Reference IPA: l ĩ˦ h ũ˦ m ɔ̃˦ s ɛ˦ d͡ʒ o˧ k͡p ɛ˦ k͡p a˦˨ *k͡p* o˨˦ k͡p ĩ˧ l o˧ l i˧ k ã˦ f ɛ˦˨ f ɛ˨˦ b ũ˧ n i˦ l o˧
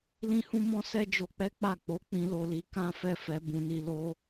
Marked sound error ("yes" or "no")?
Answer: no